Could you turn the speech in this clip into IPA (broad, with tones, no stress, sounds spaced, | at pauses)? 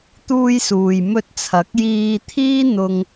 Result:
t̪ uː˧ j s uː˨ j m ɵ˧ t̚ t͡sʰ ɐ˨˥ k̚ j iː˧ t̪ʰ iː˥ n̪ ʊ˧ ŋ